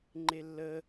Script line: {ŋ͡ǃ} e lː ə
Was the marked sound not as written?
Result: no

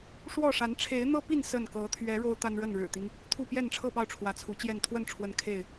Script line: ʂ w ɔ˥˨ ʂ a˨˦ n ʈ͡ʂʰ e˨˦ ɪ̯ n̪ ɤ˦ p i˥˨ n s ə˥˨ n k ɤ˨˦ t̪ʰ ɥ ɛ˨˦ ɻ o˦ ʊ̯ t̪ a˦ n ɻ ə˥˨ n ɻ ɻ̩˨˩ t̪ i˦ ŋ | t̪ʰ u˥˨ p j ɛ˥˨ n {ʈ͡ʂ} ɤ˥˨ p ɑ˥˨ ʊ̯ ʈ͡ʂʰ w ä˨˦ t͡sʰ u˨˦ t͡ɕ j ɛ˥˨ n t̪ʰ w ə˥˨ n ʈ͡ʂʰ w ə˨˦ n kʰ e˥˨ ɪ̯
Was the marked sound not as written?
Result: yes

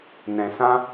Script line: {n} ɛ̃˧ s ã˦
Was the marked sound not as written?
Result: no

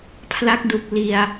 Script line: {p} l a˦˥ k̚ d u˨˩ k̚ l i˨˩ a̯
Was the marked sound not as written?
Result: yes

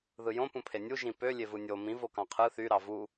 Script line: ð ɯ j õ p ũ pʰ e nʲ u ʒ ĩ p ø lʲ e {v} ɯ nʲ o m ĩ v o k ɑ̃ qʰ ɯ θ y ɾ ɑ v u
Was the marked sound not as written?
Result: no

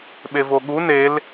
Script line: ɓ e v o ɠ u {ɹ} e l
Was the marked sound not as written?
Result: yes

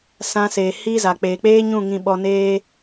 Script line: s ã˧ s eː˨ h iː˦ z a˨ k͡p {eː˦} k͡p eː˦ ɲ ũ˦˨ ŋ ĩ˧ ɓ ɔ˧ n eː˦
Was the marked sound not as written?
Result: yes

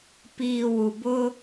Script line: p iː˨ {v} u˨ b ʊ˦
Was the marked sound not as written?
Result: yes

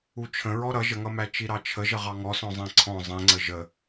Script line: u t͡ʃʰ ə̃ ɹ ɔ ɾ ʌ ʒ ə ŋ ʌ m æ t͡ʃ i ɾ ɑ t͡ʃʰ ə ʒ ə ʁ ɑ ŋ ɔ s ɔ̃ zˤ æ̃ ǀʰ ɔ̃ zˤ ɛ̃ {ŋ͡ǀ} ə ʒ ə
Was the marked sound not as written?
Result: no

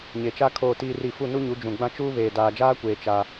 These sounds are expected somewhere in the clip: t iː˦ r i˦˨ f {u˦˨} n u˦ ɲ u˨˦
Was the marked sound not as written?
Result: no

